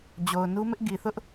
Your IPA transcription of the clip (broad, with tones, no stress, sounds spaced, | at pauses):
d͡ʑ o˨ ʊ̯ n u˦ m ɪ˦ ʔ ɡ i˨ θ ʊ˦ ʔ